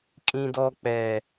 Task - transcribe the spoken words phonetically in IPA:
kʼĩ˨dɔ˨k͡pɛ˨

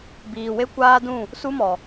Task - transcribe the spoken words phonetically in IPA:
biː˨we˦ kʷaː˦dũ˦˨ | su˦mɔ˨

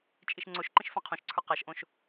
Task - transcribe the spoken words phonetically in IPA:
t͡ʃʼiʃŋ͡ǀoʃǃĩʃ fãqʰõʃǀʰə˞ qaʃʔõʃ

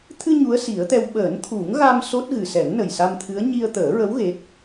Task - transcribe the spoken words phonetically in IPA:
t̪ʰɨ˧ ɲu˧˥ə̯si˨˩˦ə̯t̪ɛ˧w ɓəː˨˩˦nt̪ʰu˨˩˦ŋɣa˧m so˦˥t̚ɣɨ˨˩ sɛ˨˩˦ŋnə˨˩j sa˧mt̪ʰɨ˧˥ə̯ ɲi˧ə̯t̪əː˨˩˦ɹə˧˥w ɣe˦˥k̚

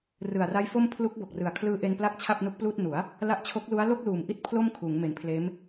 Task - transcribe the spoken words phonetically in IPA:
rɯ˨˩a̯ra˦˥jfo˥˩m pʰlu˦˥k̚bo˨˩k̚rɯ˨˩a̯ kʰlɯː˧ʔe˧n pla˥˩k̚t͡ɕʰa˥˩p̚nu˦˥k̚pluː˥˩t̚ nu˩˦a̯ | la˦˥ʔt͡ɕʰo˦˥k̚lu˦˥a̯ lo˥˩k̚luː˨˩mʔi˦˥t̚ pʰlo˥˩mkʰuː˩˦ŋ me˩˦npʰleː˦˥m

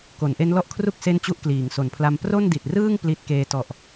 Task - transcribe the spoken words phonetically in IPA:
ko˩˦nʔe˦˥nlɔ˥˩ʔkʰru˥˩k̚ se˥˩nt͡ɕu˥˩ʔkliː˩˦ŋ so˩˦npʰla˧m pro˥˩ndi˨˩t̚rɯː˥˩ŋ pli˦˥t̚keː˦˥ tɔ˨˩ʔ

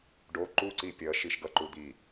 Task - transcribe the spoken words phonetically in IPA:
ɖo ǃuǀi pʲʌʃiʃ ɡʌǃud̪i

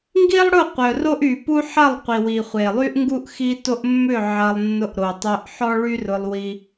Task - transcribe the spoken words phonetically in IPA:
ŋɡi˦lˠɽʊ˦˨ qʷœ˨ro˦ʔy˨pu˦ ħɐ˦˨lˠqʷi˨wi˨ χʷe˨lˠy˦ʔŋɡu˦ʔ xi˧to˧ʔ mːʏ˦˨ ʕɐ˧lˠ nːʊ˧ʔɾo˨tˤœ˧ʔ ħɔ˦ɭy˦rʊ˧lˠ wi˦

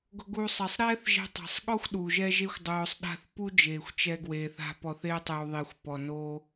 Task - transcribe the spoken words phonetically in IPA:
ɡʊ˧ɡu˧sˤɛ˨sˤ ɾɛː˦θʒɛ̤˧tˤa̤˨sˤɠɔ˦xʷ ɗu˨ʒɛ˦ʒe˦xʷ dˤʊː˧sˤɗa̤˦θ pu˦d͡ʒeː˨xʷ t͡ʃɛ˧ɡweː˨θa̤˧ pɔ˧θe˦tˤɪ˧w ðˤi˨xʷpɔ˨ no˧

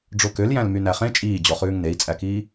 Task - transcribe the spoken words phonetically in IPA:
ɖ͡ʐokøl jæ̃lmynæχẽ t͡ʃʼiːd͡ʑɔχʉːŋ nei̯t͡sʼækiː

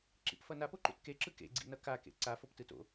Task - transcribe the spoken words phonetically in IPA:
ǁḭpfʌnap oǃṵtkeǁɯ kḛɡ͡ǀḭnʌ ka kḛǀa foptɯto̰

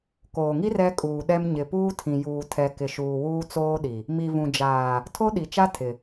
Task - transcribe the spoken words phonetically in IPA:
koː˨ŋi˦r ɛ˦kʼuː˨ɗɛ˦m ɲɪ˨puː˦tʰĩ˨juː˨ tʰɛ˨kɪ˨ʃuː˨ wuː˦t͡soː˦ɗi˨ | mi˨vũ˨d͡ʒaː˨ | tʰo˦ɗi˨t͡ʃa˦ tʰɪ˨

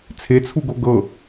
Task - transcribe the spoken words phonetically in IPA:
t͡sʰet͡sʰuɡo ɡɤ

